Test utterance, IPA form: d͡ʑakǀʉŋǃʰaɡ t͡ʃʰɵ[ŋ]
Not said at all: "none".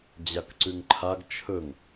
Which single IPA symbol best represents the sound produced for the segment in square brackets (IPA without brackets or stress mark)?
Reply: ŋ